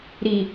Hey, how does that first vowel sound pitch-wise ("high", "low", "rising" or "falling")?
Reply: low